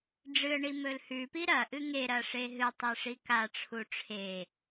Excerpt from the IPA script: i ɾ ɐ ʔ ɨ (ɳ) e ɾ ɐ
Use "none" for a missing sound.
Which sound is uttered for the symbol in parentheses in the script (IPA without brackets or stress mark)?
ŋ